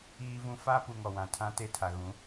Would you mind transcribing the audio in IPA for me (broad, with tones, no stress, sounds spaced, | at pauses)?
iː˦ v ũ˦ f a˦ p u˨ ŋ ɔ˨ w ã˨ tʰ ã˦ t e˦ tʰ a˨ ɣ ũ˨˦